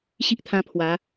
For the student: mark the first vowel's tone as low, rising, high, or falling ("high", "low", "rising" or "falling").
high